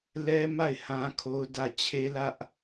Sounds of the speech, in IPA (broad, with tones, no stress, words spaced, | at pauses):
lɛ˦ ma˦˨ɪ̯hã˦kʰo˦ʊ̯ dä˦˨ t͡ɕʰe˦lä˦ʔ